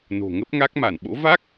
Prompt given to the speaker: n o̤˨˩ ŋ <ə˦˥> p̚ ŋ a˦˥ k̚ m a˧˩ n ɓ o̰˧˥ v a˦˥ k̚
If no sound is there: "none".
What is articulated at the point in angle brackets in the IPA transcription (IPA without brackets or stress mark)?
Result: ə˦˥